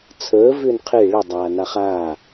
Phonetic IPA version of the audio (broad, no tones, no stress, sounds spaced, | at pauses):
t͡sʰ əː v ʏː n qʰ e ɭ ə dˤ aː n a χ aː